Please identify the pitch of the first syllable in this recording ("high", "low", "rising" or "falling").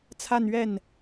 falling